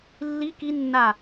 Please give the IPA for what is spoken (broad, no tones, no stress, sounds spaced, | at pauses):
lː i k i nː a